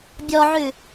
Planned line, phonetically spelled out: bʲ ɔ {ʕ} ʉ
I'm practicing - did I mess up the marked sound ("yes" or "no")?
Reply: no